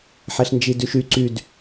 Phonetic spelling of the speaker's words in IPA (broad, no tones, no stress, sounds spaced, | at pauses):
ħ ɛ ɬ n d͡ʒ i d y ʃ y ǀ y d